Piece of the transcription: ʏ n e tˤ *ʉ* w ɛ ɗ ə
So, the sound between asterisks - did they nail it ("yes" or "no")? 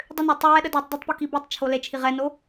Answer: no